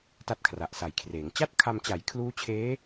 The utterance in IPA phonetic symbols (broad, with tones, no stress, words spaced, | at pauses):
ta˥˩t̚kʰra˨˩ʔsa˨˩jkʰreː˩˦ŋ t͡ɕa˥˩t̚kʰa˧m t͡ɕa˩˦j kʰluː˦˥ t͡ɕʰeː˦˥